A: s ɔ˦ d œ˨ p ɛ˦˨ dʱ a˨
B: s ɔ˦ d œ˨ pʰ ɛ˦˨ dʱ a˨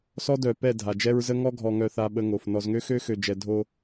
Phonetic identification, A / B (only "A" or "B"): A